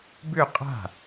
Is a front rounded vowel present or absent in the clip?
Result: present